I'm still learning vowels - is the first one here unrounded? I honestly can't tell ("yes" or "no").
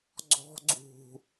no